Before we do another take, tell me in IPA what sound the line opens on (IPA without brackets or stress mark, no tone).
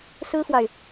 s